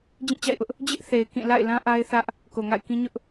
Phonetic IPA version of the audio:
d͡ʑĩ˦˨t͡ɕa̰˦˨ɪ̯ʔʊ˦ʔ | d͡ʑɪ˦ʔ θe˨ɪ̯kĩ˦˨ la̰˦˨ɪ̯lã˦ ʔa˦ɪ̯θä˦ʔ | ko˨ŋa̰˦˨ɪ̯kĩ˦ɲʊ˦ʔ

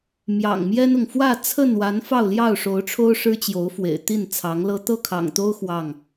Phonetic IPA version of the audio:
mjɑ̰˨˩ŋmjɛ˦nʊ˨ŋ fwä˥˨t͡sʰə˥˨n wa˨˦n fɑ˥˨ʊ̯ljɑ˥˨ʊ̯ʂo˨˦ʊ̯ʈ͡ʂʰo˦ʊ̯ ʂɻ̩˦t͡ɕjo˨˦ʊ̯fwḛ˨˩ɪ̯ t̪i˥˨nt͡sʰɑ˨˦ŋlɤ˦ t̪ɤ˥˨kʰɑ̰˨˩ŋt̪o˦ʊ̯ xwɑ˥˨ŋ

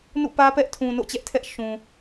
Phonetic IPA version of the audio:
nṵ˦˨pä˦pɛ˦ʔtʰũ˨ no̰˦˨t͡ɕɛ˦ʔtʰɛ˦ʔ ʃũ˨

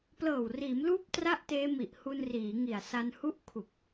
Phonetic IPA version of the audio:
plɤː˨˩wriː˩˦mluː˦˥p̚ tra˥˩ʔteː˦˥ mi˨˩ʔhu˧nriː˩˦ŋi˨˩a̯ sa˧nhu˥˩ʔ kʰu˨˩k̚

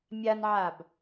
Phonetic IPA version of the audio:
mʲanʕab

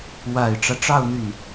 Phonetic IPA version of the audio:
wa˨˩ɪ̯ʈ͡ʂä˦ʈ͡ʂɑ˥˧ʊ̯ n̪y˥˩n

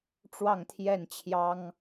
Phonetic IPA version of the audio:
ʈ͡ʂwɑ˥˨ŋt̪ʰjɛ˥˨nt͡ɕʰjɑ˦ŋ

